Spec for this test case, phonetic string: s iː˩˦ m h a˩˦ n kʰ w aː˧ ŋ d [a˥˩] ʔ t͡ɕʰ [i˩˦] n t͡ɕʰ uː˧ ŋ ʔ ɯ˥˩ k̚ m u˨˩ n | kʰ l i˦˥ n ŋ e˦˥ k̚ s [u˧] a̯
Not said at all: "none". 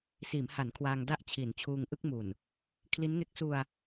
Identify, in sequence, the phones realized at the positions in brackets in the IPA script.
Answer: a˥˩, i˩˦, u˧

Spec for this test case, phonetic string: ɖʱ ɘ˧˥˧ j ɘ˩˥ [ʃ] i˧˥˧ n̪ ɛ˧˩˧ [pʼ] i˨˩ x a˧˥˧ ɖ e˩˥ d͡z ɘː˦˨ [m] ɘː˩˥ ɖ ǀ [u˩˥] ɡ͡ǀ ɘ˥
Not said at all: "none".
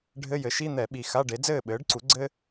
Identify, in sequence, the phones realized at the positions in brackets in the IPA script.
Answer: ʃ, ɓ, ɓ, u˩˥

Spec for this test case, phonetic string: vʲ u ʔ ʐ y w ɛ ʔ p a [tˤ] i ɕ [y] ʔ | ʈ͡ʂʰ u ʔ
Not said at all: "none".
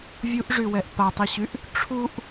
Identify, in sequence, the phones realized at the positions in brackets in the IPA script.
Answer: tˤ, y

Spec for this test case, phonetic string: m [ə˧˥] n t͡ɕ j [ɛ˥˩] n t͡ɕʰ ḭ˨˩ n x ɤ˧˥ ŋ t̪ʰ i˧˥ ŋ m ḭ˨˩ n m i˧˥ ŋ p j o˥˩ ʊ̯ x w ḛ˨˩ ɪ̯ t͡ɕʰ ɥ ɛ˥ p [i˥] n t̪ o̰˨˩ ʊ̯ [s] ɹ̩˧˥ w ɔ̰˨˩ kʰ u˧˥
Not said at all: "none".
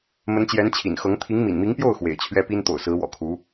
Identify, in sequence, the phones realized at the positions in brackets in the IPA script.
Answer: ə˧˥, ɛ˧˥, i˥, s

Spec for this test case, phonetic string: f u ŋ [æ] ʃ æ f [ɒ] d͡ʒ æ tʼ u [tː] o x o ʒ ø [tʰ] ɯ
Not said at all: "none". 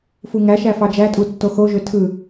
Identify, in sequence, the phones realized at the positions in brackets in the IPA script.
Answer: æ, ɑ, tː, tʰ

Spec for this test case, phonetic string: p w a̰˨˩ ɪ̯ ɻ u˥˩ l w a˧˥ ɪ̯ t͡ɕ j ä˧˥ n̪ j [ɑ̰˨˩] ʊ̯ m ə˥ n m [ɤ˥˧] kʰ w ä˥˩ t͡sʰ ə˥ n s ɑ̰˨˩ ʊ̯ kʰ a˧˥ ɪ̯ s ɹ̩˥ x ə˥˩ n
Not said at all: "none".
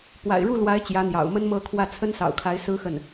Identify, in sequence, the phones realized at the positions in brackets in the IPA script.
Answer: ɑ̰˨˩, ɤ˥˧

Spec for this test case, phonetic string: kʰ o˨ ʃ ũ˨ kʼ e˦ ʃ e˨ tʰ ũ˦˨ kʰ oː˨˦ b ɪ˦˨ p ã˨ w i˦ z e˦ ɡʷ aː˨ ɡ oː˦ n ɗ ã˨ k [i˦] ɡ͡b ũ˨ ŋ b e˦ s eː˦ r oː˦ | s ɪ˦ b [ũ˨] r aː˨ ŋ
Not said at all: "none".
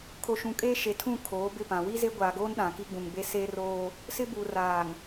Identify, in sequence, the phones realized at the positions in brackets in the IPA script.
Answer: i˦, u˨

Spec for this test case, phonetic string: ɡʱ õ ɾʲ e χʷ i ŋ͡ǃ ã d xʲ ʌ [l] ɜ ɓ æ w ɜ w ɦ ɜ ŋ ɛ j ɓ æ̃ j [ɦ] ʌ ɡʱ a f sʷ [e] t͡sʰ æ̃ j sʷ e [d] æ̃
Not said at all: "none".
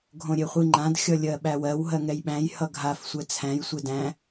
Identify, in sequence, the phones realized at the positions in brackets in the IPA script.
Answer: lʲ, h, ɛ, d

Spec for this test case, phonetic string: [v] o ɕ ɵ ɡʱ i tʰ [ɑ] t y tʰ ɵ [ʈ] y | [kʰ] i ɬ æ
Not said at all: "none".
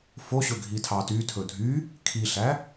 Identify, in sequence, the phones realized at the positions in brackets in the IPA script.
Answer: f, ɑ, dʱ, kʰ

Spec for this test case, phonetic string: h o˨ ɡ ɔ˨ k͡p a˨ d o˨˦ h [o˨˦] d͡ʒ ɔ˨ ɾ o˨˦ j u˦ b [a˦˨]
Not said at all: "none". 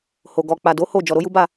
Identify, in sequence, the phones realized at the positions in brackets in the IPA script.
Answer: o˦˨, a˦˨

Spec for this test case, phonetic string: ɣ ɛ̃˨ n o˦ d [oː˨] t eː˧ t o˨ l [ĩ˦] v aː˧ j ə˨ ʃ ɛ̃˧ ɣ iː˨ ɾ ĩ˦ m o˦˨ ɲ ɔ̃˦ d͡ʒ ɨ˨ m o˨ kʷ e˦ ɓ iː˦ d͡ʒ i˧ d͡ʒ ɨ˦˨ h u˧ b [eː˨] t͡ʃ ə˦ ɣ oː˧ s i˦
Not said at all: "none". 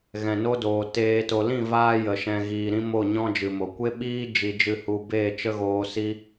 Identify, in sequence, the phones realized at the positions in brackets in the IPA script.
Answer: oː˨, ĩ˦˨, eː˦˨

